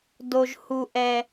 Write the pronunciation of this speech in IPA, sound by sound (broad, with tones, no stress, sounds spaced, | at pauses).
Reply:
d o˨ ʒ h u˨ ʔ ɛ˨